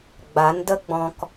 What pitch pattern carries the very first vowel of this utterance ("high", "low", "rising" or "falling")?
rising